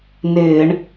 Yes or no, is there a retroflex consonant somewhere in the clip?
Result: yes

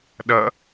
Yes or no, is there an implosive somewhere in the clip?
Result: yes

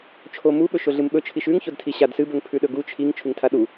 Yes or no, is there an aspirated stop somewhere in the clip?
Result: yes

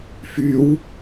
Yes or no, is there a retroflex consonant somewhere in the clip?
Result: no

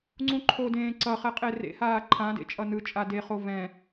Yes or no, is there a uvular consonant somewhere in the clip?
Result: yes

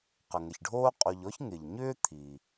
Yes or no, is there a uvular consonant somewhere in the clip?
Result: yes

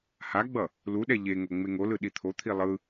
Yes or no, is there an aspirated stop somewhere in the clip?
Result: yes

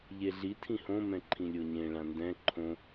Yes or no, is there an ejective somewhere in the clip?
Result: no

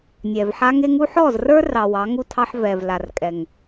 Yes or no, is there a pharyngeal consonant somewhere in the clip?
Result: yes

